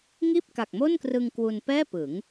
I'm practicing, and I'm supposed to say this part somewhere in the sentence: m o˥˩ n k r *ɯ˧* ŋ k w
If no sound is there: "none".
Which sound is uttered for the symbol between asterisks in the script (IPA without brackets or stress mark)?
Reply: ɯ˧